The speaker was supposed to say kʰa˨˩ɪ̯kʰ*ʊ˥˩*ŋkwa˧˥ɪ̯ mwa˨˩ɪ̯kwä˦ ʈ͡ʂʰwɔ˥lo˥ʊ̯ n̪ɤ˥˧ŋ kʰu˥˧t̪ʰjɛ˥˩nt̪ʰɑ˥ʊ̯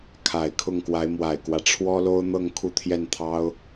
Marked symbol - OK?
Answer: yes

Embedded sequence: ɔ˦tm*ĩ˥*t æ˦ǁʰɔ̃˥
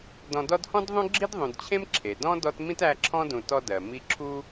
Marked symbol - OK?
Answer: yes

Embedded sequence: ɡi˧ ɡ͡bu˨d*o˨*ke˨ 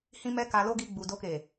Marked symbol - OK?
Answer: no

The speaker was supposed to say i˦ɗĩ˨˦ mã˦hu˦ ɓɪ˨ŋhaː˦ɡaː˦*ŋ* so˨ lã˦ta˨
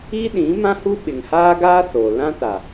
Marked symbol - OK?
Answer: no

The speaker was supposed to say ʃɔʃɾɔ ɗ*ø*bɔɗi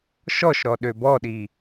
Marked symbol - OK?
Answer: yes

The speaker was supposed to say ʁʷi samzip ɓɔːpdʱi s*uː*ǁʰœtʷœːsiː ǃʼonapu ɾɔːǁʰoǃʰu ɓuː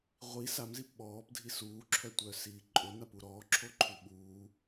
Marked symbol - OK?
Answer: yes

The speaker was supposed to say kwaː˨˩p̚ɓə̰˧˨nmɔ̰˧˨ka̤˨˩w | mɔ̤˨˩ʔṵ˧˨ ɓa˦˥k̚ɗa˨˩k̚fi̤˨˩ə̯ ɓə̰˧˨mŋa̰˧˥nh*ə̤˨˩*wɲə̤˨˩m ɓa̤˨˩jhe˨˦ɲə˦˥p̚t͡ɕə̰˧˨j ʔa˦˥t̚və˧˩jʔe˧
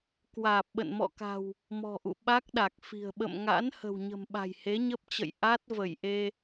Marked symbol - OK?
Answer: yes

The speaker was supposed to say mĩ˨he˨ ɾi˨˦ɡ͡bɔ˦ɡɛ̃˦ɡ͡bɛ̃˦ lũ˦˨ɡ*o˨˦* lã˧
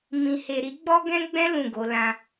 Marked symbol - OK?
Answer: yes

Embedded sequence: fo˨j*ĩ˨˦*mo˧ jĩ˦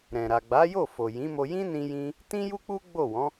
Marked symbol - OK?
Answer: yes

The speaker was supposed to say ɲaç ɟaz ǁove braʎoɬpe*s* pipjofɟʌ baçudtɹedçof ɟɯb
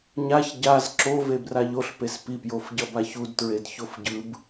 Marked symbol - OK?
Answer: yes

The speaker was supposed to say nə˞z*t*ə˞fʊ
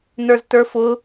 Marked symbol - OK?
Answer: yes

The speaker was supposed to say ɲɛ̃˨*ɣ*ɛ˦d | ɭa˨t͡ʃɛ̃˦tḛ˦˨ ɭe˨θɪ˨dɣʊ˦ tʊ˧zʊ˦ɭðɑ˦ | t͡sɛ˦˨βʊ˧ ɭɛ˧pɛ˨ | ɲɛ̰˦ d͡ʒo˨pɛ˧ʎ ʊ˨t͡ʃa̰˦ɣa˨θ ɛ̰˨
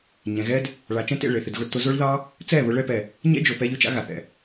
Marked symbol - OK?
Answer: yes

